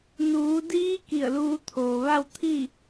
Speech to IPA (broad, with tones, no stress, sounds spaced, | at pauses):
n uː˩˧ d iː˧˥ k i˧˩ ə̯ l uː˧ t̪ʰ oː˩ ʋ a˥˨ w t̪ʰ i˥˨